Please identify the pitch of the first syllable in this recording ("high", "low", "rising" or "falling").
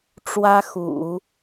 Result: high